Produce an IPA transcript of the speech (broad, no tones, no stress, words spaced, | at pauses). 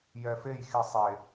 jɛfej xisˤe